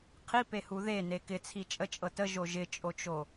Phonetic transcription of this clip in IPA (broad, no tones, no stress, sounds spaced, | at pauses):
qʰ i p e h u ð e n e k ɪ t͡sʰ i t͡ʃʼ ə t͡ʃʼ ɤ t ə ʒ o ʒ ɪ t͡ʃʼ o t͡ʃ o